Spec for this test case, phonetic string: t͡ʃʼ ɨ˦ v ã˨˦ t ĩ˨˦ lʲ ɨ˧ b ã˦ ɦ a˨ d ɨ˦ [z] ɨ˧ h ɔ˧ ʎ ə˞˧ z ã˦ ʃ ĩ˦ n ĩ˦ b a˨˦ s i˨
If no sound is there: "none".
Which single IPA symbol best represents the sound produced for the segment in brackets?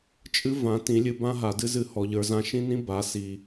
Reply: z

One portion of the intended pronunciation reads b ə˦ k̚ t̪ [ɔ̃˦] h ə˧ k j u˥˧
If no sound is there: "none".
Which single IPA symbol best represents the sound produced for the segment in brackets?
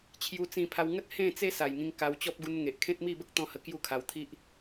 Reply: ɔ̃˦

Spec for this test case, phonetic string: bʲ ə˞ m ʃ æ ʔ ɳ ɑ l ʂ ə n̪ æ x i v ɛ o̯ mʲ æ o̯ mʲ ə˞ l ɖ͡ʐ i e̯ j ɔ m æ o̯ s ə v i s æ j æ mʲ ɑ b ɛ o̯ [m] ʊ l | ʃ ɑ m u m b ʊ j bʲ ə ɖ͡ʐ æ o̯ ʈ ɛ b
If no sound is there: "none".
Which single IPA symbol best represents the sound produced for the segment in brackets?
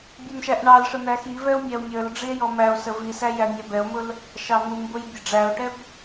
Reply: m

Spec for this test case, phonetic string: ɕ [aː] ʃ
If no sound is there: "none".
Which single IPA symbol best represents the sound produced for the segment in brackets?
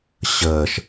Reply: əː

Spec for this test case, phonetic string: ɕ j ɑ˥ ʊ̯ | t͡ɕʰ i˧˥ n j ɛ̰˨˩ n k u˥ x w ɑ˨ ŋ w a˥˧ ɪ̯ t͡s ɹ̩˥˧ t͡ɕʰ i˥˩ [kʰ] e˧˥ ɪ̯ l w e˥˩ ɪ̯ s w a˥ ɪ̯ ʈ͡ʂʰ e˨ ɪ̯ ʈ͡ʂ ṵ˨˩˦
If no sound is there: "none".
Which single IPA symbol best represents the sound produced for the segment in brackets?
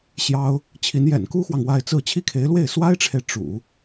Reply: kʰ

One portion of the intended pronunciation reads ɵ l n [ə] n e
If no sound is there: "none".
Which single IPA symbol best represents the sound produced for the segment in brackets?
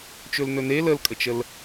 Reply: ɵ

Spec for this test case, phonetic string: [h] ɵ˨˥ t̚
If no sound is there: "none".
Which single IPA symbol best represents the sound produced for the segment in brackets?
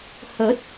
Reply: h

